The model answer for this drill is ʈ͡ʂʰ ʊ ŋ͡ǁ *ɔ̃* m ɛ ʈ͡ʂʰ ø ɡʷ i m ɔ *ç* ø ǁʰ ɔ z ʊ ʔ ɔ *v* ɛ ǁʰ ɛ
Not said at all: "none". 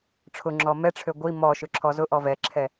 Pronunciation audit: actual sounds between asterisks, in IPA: ɔ, ʃ, v

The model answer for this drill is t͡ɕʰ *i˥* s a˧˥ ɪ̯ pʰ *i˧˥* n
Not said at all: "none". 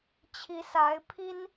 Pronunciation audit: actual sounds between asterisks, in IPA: i˧˥, i˥

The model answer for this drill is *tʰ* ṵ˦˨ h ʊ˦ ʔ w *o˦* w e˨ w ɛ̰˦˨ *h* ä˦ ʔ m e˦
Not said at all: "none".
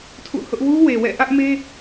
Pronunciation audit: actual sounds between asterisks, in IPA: tʰ, u˦, ʔ

